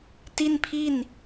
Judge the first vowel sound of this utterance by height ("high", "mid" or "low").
high